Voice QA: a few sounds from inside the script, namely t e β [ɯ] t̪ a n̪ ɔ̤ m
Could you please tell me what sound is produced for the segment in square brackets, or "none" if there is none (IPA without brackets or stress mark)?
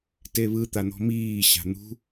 ɯ